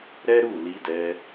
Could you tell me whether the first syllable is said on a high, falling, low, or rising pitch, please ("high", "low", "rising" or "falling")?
high